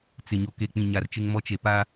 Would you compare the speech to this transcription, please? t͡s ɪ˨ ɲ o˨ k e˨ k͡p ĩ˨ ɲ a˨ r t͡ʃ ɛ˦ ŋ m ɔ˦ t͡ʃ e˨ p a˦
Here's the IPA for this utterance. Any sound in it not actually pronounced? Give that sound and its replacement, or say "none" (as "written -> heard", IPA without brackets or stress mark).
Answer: ɛ˦ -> ɪ˦